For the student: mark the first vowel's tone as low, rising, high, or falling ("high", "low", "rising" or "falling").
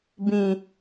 low